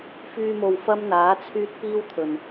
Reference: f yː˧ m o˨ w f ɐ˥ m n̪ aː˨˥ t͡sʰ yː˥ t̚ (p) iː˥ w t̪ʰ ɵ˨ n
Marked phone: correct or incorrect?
correct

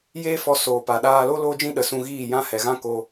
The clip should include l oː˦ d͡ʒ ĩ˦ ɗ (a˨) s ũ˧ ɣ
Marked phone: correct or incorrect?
incorrect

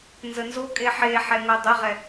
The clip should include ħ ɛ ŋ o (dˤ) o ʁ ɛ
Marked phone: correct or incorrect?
correct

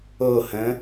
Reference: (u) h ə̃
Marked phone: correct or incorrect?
incorrect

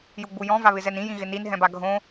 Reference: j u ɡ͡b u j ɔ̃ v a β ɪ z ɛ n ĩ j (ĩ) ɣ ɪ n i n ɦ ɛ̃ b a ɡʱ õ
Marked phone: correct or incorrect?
correct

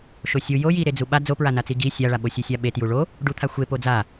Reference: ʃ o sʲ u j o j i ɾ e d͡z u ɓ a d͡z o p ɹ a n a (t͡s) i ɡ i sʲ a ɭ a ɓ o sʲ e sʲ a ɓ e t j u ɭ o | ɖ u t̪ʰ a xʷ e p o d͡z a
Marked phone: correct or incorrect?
correct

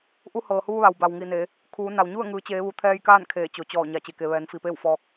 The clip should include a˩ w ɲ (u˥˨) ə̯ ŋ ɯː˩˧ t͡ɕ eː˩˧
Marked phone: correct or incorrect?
correct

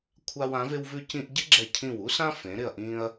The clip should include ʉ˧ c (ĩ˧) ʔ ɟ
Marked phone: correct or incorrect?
correct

